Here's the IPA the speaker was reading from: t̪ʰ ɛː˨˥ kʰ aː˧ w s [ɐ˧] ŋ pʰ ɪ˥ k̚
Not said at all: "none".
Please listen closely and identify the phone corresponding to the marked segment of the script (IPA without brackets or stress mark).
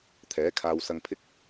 ɐ˧